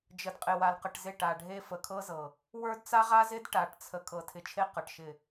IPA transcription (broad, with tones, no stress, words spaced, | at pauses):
d͡ʒə˨dqʼɪ˨ wa˨lqə˨ʈzɪ˦˨ ʈa˨ɖʱe˦ fə˨kʰɤ˦zɤ˨ | wə˞˦dt͡sa˦ʁa˦zɪ˦d ʈa˨˦ʈt͡sʰə˨ kʰɤ˨tʰɪ˨t͡ʃʰe˦ qɤ˨ʈʃɪ˦˨